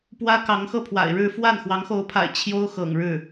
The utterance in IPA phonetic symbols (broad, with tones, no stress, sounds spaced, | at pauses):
p w ä˥ k ɑ˧˥ ŋ x ɤ˥˩ pʰ w a̰˨˩ ɪ̯ ɻ ɻ̩˥˧ f w a˥˩ n x w ɑ˧˥ ŋ x o˧˥ ʊ̯ pʰ a̰˨˩ ɪ̯ t͡ɕʰ j o˥ ʊ̯ x ɤ̰˨˩ ŋ ɻ ɻ̩˥˩